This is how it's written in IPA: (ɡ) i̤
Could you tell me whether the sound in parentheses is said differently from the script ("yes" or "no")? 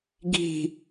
no